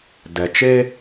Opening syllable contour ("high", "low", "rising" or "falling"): low